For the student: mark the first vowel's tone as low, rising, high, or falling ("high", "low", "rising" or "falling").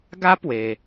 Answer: high